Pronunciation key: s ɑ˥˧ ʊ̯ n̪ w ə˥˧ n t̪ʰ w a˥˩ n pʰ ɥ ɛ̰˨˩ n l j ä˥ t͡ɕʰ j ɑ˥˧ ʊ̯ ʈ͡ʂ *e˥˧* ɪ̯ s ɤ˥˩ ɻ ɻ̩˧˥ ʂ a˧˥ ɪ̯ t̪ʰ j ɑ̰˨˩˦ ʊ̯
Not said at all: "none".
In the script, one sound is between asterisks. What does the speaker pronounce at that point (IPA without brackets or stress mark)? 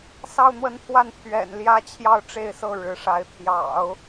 e˥˧